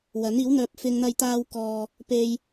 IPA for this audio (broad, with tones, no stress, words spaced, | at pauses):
wɐ˨˥niː˨˥wn̪œː˧p̚ fɪ˥ŋ n̪ɐ˧jt̪aː˧wkɔː˨ | pe˧j